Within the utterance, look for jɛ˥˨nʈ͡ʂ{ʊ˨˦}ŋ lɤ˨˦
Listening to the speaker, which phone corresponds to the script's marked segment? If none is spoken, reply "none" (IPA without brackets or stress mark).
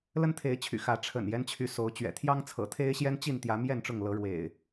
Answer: ʊ˥˨